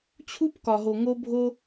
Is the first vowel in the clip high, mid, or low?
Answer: high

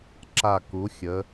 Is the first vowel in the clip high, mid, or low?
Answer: low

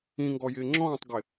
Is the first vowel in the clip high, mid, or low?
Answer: high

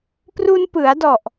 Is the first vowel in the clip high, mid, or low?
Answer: high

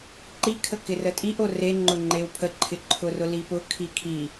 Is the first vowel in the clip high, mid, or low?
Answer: high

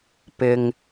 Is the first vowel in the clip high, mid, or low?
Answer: high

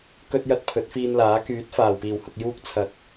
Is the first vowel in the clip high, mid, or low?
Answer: mid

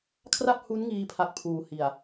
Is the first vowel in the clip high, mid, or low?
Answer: low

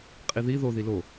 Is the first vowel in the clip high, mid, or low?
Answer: high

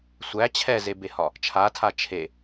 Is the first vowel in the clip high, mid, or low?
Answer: low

